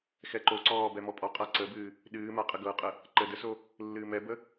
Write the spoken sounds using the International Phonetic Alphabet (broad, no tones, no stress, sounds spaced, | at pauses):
x ɛ ǃ o ǀ ɔː b ɛ m ɔ pʼ ɔ qʼ a ǀ ə b ɨː | ɗ ɨː m a qʼ ə ɡ ɤ qʼ ə | ǃ əː d ə s o | lː ɨː m ɛ b ə